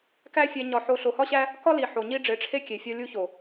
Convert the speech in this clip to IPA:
k æ˦ fʲ æ˧ ɲ ɒ˧ ħ o˧ ɬ o˨ h ɒ˦ ɕ æ˦ | k ɒ˦ l i˨ ħ o˨ ɲ i˦ ɖ͡ʐ e˨˦ ʈ͡ʂʰ e˦ kʲ e˨ fʲ ɒ˧ lʲ u˧ ç o˨

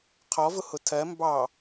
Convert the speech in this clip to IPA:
qʰ ɔ v ʊ h ʊ tʰ ɜ m b ɑ

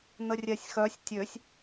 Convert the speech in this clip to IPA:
n̪ ə rʲ ɛ sʲ x œ sʲ tʲ ø sʲ

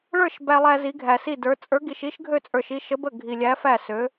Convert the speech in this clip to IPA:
ɭ ə˞˥˨ ʃ b æ˧ lˠ æ˧ z i˧˥ ɡʱ æ˧ s i˥˨ d ə˞˧˥ t͡sʼ ə˞˧˥ ɡ i˧ ʃ i˧˥ ʃ ɡʱ ø˥˨ t͡sʼ ə˞˧ ʃ i˥˨ ʃ ə˧˥ b ə˥˨ ɡʱ i˧ lʲ æ˧˥ f æ˥˨ s ø˧˥

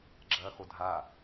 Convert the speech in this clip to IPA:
ɡ͡ǁ ɐː x o dʱ a

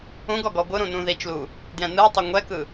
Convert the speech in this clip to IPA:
ũ ɡ ɔ ɡ ɔ ɡʷ ɯ ɾ ũ n ũ ð i t͡ʃ l u | d j ɛ̃ n ɯ tˤ ɛ ŋʷ ɛ k ɯ

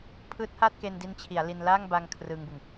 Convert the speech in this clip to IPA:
pʰ ɯː˦˥ t̚ h aː˥˩ t̚ k e˧ n d i˦˥ n t͡ɕʰ i˩˦ a̯ l i˧ n l aː˥˩ ŋ b a˧ ŋ kʰ r ɯ˧ ŋ b ɯ˨˩ ŋ

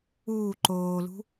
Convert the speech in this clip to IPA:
uː ǃ oː l ṳ

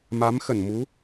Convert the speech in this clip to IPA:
m a˨˦ m x ə˧˩ n m u˨˦

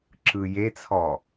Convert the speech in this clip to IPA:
ǁ ɯ j e t͡sʰ ɔ

